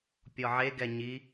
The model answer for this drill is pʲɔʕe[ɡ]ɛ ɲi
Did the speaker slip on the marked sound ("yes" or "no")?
no